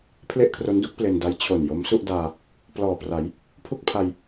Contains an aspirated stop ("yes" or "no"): yes